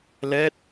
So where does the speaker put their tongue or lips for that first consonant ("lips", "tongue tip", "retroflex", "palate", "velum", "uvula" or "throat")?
tongue tip